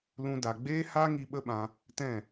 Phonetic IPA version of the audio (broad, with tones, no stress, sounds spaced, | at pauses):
l ũ˧ d a˨ ɡ͡b eː˦ h a˦ ŋ i˧ ɓ ə˦ ɓ ã˧ | t ɛ̃˦˨